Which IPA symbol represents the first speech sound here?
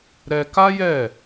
ɾ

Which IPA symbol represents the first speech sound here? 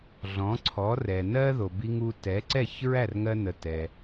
ɮ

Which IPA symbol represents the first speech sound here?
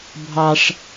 bʱ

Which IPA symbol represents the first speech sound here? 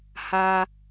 h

